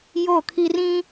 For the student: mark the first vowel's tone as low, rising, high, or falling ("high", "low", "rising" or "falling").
falling